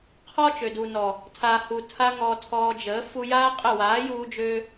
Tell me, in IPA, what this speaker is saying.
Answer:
qʰ ɔ˦ t͡ʃ ø˨ d u˨ n ɔ˨ | tʰ aː˧ h u˧ tʰ a˦ ŋ ɔː˧ tʰ ɔː˧ d͡ʒ əː˨˦ f u˧ j aː˦ qʼ ə˦˨ w aː˨˦ j uː˧ d͡ʒ øː˧

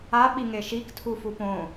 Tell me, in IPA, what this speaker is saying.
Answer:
a ɓ i ŋ e ʃ i k tʰ u f u p õ

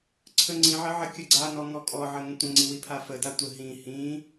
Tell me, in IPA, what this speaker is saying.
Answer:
ǀʰ ə ŋ͡ǀ ĩ ʕ ə ʕ ə kʲ ə ɡ͡ǀ a n ɔ ŋ ɔ kʼ ɔ ʕ ə ŋ ə̃ tʷ ə̃ ŋ͡ǀ i w i pʰ a f ə d a tʷ ə ɦ ĩ h ĩ

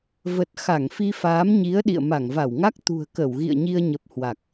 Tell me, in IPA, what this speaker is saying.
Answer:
v ə˨˩ t̚ x a˧˩ ŋ f i˧ f aː˨˦ m ɲ i˨˦ ə̯ ɗ ḭ˧˨ ə̯ m a˧˩ ŋ v a˧˩ w ŋ a˦˥ k̚ t̪ ṳ˨˩ ə̯ k ə˧˩ w ɣ ḭ˧˨ ə̯ ɲ i˧ ə̯ ɲ ə˨˩ p̚ h w a˨˩ k̚

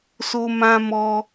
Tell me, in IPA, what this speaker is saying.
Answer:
s o˧ m ã˧ m ɔ˧

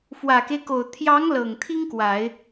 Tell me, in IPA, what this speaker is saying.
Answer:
f w ä˨˩ k e˦ ɪ̯ k o˨˩ ʊ̯ t̪ʰ j ɑ˧˥ ŋ l ɤ˨˩ ŋ t̪ʰ i˥ ŋ k w a˨˩˦ ɪ̯

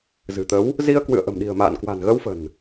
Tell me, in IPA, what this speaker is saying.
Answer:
z ɨ̤˨˩ t̪ ə˨˦ w | z i˧ ə̯ k w ɨ̰˧˨ ə̯ ʔ ə̤˨˩ m ɗ i̤˨˩ ə̯ m a̰ː˧˨ n k w a̤˨˩ n ɣ ə˧ w f ə̤˨˩ n

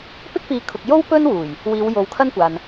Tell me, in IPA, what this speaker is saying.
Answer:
p ɪ˥ k̚ p iː˨˧ kʰ ʊ˨ k̚ j o˥ w p ɵ˥ n w uː˨˩ j | w iː˨˧ w j o˨˧ w kʰ ɐ˥ n kʷ aː˨ n

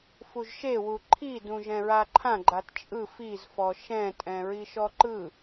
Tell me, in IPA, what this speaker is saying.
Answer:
f u ʒ ʃ e w u ǃʰ i d ũ ʒ ɛ̃ ɹ a ǃʰ ã ɡ͡ǃ a t t͡ʃʼ ɯ f i z f ɔ ʃ ɛ̃ tʼ ɛ̃ ɹ i ʃ ɔ ǃ ɯ

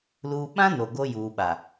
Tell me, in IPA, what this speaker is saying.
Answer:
l uː˨ ɓ ã˦ n o˨ ɡ o˦ j uː˨ ɓ a˨

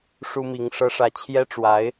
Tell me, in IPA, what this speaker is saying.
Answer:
ʂ u˥ m i˧˥ ŋ ʂ ɤ˥ ʂ ä˥˩ t͡ɕʰ j ɛ˥ ʈ͡ʂ w a˧˥ ɪ̯

